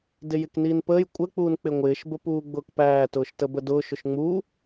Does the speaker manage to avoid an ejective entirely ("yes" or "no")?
no